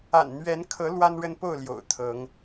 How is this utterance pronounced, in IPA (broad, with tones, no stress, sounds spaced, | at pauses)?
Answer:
a̰˨˩ n n̪ ɥ ɛ˨˦ n kʰ ɤ˨˦ l w a˦ n ɻ ə˦ n p o˥˨ ʊ̯ l j o̰˨˩ ʊ̯ t̪ʰ ɤ˨˦ ŋ